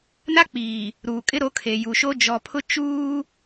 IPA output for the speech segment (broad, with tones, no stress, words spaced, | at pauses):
na˦k͡piː˨ | ɾuː˨kʼɪ˦ɾo˨˦ kʰe˨ju˨ʃo˦ d͡ʒɔ˨pʰʊ˦ t͡ʃuː˦